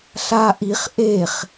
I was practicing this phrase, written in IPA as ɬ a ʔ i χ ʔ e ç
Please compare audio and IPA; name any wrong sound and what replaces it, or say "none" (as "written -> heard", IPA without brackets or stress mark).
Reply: ç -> χ